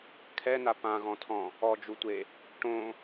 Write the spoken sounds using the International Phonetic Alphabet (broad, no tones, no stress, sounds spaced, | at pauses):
kʰ ɛ n a p ã ɣ ɔ̃ tʰ ɔ̃ | ɔ d͡ʒ u tʷ e | ʈ õ